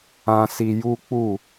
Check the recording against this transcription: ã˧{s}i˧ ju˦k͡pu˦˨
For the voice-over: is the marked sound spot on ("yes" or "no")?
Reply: yes